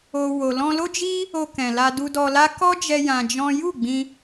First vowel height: mid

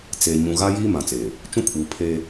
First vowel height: mid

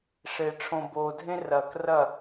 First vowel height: mid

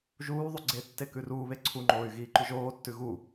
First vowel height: high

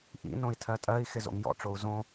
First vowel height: high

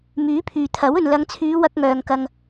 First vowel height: high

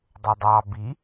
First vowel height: mid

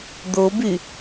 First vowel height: mid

